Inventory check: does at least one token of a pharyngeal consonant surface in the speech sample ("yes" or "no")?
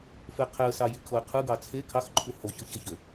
no